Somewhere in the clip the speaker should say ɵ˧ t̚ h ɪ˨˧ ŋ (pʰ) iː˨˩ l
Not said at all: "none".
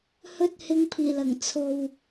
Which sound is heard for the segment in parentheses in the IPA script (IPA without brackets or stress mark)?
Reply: pʰ